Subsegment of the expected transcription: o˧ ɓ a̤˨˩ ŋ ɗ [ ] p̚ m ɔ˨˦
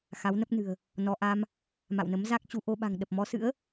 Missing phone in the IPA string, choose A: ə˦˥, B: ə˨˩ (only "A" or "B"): B